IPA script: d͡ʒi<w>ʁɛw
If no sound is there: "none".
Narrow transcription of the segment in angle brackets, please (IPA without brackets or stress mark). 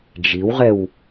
w